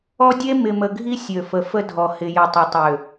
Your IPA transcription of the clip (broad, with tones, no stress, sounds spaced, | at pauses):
ɔ˦ dʲ e˦ m ɪ˨ m ə˨ ɡʱ i˦ sʲ ø˨ f ə˨ f ə˦ dʱ ɔ˨ h ɪ˨ j ə˨ tˤ ɪ˨ tˤ ø˨